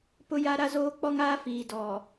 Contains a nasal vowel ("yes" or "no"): no